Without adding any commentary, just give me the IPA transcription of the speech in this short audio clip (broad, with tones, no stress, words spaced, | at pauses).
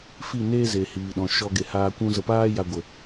fi˦˨neː˦ze˨ hiː˨ɗɔ̃˨ ʃɔ˧ɡe˨haː˧ kʷũ˦zə˧ paː˦ ja˧ɡʷə˨